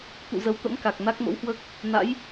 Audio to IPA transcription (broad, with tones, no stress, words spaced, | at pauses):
t̪ṵ˧˨ zə˨˦wt̪ə̰˧˥m ka˨˩k̚ na˦˥k̚mə̰˧˥whwəː˦˥k̚ | na̰˧˥j